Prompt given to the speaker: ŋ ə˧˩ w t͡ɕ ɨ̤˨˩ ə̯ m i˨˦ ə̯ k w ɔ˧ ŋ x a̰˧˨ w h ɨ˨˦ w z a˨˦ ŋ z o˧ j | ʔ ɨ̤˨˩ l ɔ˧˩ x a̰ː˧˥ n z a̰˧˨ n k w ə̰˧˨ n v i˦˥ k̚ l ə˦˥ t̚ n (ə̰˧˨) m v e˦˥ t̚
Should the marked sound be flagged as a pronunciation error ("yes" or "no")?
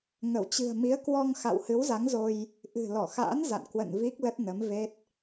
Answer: yes